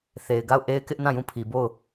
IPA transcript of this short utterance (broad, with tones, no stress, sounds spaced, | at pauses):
θ e˨ ɪ̯ ɡ a˦˨ ʊ̯ ʔ e˦ ɪ̯ k ɪ˦ ʔ n ã˦˨ j ũ˦˨ pʰ i˨ b o˦˨ ʊ̯